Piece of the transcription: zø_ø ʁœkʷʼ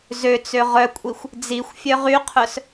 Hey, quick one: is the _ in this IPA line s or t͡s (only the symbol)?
t͡s